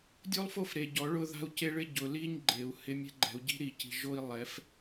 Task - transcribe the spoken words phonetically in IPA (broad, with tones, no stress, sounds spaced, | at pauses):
dʲ o˦ lˠ f o˦ f ɾ e˨ ɟ ɔ˨˦ ɭ ʊ˦ ð a̤˦ u̯ c e˦ ɭ ɪ˦ ɟ ʊ˨ l i˦ ɲ ɡ͡ǃ e˨ u̯ h ɪ˦ mʲ ɛ̤˦ ɡ͡ǃ ɛ̤˨ u̯ ɟ i̤˦ ɾ i˨ c i̤˨ ʒ o˦ i̯ lˠ ɛ˨˦ f